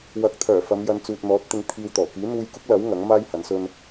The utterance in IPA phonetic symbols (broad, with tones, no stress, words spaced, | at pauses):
wɐ˨˥k̚ t̪ʰœː˨˩fɐ˨˧mjɐ˨˧n t͡suː˨t̚n̪ɔː˨˥t̚t̪ɪ˧ŋ t̪ʰiː˧wt̪ɔː˨˩ kiː˨˥n̪uː˧jkʊ˥k̚lɐ˨˥w ŋɐ˨˥ŋmaː˥j hɐ˨˥nsɵ˥n